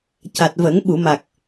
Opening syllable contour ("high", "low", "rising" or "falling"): low